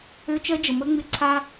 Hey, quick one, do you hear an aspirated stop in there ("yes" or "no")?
yes